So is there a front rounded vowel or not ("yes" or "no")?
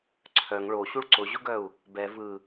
yes